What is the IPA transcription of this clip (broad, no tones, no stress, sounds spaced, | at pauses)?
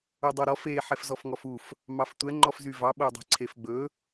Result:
ɵ dˤ o ɾ ɔ f e ħ ɛ f z ɔ f ŋ ɔ f u f | m ɑ f tʷ ɛ ŋ͡ǃ ɔ f z y v ɑ ɓ o dˤ e̤ ǀʰ e f ɡ͡b ɵ